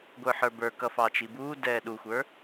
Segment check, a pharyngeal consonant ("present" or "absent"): present